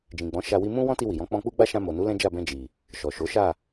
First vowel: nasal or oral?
nasal